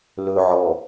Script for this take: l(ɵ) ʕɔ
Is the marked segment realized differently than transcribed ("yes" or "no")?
no